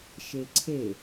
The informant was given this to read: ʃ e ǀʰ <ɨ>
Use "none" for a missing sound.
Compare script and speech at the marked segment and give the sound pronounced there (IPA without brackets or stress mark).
e